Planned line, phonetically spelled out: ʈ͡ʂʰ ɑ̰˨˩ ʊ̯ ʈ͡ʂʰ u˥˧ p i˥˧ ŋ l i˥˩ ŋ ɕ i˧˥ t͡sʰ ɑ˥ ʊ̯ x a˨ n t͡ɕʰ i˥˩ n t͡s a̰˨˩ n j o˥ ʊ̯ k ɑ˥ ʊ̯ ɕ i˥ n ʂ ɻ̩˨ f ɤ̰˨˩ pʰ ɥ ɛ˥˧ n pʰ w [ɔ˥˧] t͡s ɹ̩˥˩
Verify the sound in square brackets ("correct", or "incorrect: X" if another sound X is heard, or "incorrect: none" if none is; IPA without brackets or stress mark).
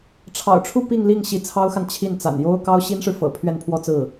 correct